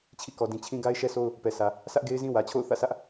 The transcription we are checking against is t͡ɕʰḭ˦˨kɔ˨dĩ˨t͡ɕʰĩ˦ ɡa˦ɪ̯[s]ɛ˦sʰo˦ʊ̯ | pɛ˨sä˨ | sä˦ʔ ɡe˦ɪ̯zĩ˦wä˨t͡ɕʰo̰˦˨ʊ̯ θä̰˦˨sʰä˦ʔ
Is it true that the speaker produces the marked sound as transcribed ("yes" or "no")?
no